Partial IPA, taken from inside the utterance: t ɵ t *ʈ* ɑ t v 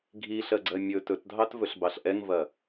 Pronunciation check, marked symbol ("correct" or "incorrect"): incorrect